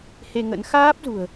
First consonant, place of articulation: glottal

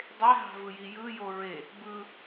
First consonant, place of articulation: alveolar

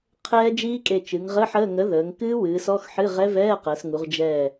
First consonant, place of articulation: uvular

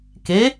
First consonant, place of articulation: velar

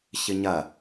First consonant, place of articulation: palatal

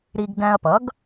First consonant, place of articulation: alveolar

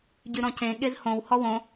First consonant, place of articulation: palatal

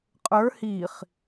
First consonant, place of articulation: uvular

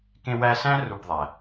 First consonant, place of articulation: velar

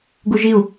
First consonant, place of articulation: velar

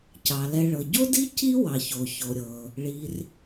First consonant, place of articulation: palatal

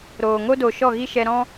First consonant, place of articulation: alveolar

